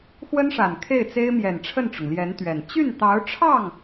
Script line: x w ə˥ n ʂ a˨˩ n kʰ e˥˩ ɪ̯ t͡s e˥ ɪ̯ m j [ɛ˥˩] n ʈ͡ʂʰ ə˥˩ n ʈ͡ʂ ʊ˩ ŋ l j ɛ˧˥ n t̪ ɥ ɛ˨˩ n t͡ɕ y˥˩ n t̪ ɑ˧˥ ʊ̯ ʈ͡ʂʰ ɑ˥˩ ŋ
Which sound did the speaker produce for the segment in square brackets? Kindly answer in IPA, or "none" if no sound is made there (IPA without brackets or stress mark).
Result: ɛ˨˩